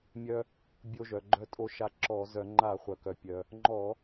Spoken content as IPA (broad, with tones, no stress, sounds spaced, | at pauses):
mʲ œ˧ | bʲ o˧ ʒ œ˩ ɡ͡ǃ œ˧ tʼ o˧ ʃ a˧ ǁ ɔ˧˩˧ z œ˧˩˧ ŋ͡ǃ a˧˩˧ χʷ œ˩ k œ˩ pʲ œ˩ | ŋ͡ǃ ɔ˧˩˧